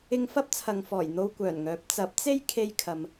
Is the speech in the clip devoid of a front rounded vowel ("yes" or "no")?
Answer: no